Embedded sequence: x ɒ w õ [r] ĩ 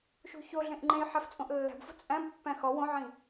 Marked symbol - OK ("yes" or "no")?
no